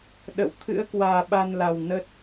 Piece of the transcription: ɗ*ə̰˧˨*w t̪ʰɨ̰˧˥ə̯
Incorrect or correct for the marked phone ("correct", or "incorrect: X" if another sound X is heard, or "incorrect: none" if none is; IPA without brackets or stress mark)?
correct